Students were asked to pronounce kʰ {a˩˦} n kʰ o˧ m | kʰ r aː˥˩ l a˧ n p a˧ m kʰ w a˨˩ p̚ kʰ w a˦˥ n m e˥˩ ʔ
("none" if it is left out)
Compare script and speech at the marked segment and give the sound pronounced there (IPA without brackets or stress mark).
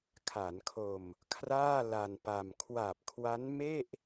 a˩˦